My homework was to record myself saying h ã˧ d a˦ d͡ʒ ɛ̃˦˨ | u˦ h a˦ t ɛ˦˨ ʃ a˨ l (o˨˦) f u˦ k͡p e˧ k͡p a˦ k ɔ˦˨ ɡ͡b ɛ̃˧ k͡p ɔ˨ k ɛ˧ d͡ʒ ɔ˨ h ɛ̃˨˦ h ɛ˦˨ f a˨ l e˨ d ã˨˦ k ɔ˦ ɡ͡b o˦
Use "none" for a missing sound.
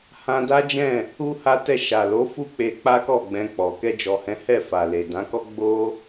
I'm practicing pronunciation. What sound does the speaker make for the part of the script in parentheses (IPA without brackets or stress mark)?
o˨˦